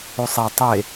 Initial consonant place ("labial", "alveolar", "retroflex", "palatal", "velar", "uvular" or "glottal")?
alveolar